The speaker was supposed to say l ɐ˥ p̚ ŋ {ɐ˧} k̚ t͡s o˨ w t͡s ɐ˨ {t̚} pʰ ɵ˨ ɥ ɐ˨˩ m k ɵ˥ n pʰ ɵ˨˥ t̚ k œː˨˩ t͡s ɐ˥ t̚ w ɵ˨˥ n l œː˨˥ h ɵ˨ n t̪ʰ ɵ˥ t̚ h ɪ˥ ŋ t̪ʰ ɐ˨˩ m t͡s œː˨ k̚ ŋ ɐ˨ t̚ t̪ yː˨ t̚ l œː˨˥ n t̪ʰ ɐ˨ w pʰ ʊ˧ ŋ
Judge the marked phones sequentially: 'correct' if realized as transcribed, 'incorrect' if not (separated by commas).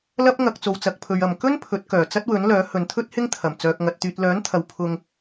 correct, incorrect